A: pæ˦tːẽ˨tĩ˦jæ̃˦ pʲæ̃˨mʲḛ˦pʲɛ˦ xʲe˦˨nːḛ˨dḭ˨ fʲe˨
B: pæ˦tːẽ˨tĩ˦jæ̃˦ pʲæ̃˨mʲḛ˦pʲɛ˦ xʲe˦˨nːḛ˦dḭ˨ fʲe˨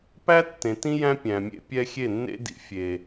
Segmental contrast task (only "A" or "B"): B